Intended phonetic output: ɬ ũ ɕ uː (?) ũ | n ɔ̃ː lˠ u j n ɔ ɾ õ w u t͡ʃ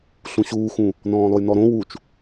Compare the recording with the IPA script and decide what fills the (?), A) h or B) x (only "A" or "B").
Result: B